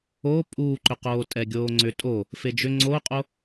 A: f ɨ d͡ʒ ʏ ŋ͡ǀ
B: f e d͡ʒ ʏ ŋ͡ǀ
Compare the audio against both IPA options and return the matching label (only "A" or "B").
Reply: B